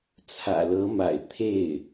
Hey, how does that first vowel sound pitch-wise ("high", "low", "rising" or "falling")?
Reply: low